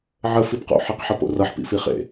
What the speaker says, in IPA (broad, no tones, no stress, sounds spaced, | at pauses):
ʕ ə f i p q o̰ ħ i q ħ ʌ p o̰ r ʌ ħ p ḭ f i χ ḛ